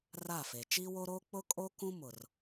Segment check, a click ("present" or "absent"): absent